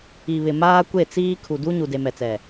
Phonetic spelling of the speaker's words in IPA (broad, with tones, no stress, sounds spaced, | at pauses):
i˨ β ɪ˨ m aː˦ kʷ e˦˨ t͡s iː˦ kʰ u˨ d u˦ ɲ u˨ d e˨ m ɛ˨ t͡s ɛ˨